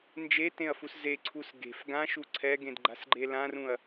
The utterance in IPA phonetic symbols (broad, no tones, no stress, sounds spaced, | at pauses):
n d͡ʒ e t ẽ ɐ̯ f u s z e ǀʰ u s ɡ e̤ f ɡ ã ʃ u ǀʰ ɛ ɡ ẽ d ɡ͡ǃ a̤ s ɡ͡ǃ e l ã r ũ ɐ̯